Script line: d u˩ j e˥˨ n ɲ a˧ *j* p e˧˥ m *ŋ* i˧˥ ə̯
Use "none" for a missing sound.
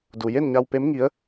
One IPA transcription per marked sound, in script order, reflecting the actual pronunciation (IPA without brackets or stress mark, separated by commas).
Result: w, ŋ